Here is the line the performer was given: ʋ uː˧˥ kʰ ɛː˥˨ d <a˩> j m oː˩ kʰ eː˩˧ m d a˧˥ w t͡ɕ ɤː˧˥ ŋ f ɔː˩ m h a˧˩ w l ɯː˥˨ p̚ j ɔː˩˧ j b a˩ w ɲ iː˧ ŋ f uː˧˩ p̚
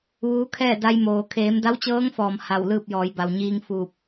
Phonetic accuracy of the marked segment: incorrect: a˧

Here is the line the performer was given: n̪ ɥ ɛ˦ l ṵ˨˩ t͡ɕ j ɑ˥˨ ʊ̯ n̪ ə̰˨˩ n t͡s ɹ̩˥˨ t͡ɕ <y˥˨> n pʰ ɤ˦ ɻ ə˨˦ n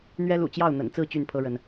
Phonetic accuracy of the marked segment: correct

